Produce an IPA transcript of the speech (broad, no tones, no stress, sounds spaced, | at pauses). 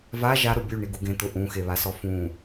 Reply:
v a ʒ a ɾ ʊ bʲ u ɳ i ɡ u ɡ ẽ t̪ ʊ ʔ ũ x e β a s ɔ f ũ